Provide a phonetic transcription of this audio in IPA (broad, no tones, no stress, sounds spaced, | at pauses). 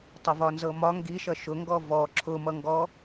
tˤ ə v ɒ n z ɤ m ɒ ŋ ɡ i ʃ ʌ ʃ ʊ ŋ ɡ ɔ v ɔ ǁʰ ʊ m ʌ ŋ ɡ ɔ